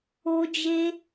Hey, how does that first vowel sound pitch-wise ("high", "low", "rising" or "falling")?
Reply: high